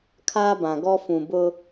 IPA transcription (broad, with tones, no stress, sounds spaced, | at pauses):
kʰ aː˦ b ã˨ ɡ ɔ˦ f ũ˨ b ʊ˦